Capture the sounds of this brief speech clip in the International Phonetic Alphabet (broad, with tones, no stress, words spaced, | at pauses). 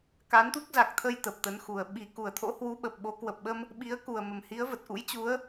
ka˨˦nt̪u˦˥k̚za˨˩k̚t̪ʰə˧j t̪ə˨˩p̚t̪ə˨˦nxu˨˩ə̯ ɓi˧˩ ku˧˩ə̯t̪ʰo̰˧˥hwu˨˦ ɓə˨˩p̚ɓo˨˦kwə˨˩p̚ɓə˧m | ɓi˨˦ə̯ku˨˩ə̯mə˨˩m hi˨˦ə̯və˨˩t̚ ʔṵ˧˥jt͡ɕu˨˦ə̯